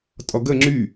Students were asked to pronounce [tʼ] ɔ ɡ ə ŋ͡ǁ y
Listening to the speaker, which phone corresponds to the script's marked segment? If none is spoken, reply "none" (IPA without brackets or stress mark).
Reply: tʼ